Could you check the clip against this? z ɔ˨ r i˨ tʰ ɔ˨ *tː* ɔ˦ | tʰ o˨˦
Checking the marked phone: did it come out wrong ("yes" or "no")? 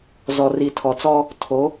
yes